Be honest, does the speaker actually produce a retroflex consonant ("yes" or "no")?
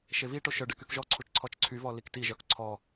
yes